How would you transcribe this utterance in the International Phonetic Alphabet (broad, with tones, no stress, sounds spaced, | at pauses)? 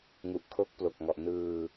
ŋ u˨˩ ʔ kʰ o˦˥ k̚ p l o˨˩ k̚ ŋ ɔ˨˩ ʔ n ɯː˧